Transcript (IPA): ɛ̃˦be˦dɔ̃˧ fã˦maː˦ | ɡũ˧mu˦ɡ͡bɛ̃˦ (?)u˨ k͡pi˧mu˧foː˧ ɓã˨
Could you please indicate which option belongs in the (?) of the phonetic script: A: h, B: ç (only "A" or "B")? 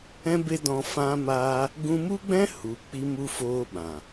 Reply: A